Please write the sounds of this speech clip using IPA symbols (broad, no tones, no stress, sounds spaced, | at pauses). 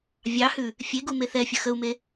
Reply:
vʲ ɑ h ʉ | fʲ e ɡ u m e θ ɛ fʲ ə x ə u̯ m e